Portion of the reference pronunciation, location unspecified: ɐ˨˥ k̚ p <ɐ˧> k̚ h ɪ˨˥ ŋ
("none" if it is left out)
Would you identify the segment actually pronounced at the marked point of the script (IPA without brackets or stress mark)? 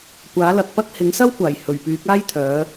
ɐ˥